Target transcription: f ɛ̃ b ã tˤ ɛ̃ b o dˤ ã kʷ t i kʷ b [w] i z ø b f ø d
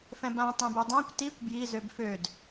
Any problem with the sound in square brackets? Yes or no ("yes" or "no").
yes